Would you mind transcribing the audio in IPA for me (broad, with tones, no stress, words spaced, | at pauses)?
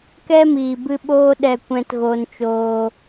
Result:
kɛ˦miː˨bɨ˧ ɓoː˦ɗɛ˧kʷɛ̃˧t ɣo˧nt͡ʃoː˧